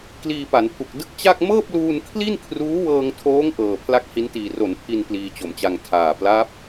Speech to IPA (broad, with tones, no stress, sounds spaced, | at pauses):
k l iː˧ p a˩˦ n pʰ u˨˩ k̚ d ɯ˦˥ k̚ t͡ɕ a˥˩ k̚ m ɤː˥˩ p̚ l uː˧ n kʰ l i˥˩ n kʰ r uː˦˥ w ɤː˧ ŋ tʰ oː˦˥ ŋ ʔ ɤː˨˩ pʰ l a˥˩ k̚ h i˦˥ n t iː˨˩ r o˩˦ n pʰ i˧ n p l iː˧ t͡ɕ o˨˩ m t͡ɕ a˧ ŋ tʰ aː˨˩ p l a˦˥ p̚